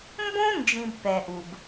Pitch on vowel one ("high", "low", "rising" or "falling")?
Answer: high